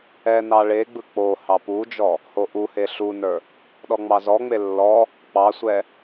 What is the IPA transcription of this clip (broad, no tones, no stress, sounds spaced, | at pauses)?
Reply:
ɛ n ɑ ɭ e ɡ͡b ɯ k͡p o h ɑ p u d͡ʒ ɔ | h o ʔ u h e ɬ u n ə˞ | ɗ ɔ ŋ͡m ɑ z ɔ ŋ͡m e lː ɔ | k͡p ɑ sʷ ɛ